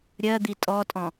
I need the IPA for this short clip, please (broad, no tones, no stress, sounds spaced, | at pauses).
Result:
ɾʲ ɜ d̪ i tʼ ɔ tʼ ɔ̃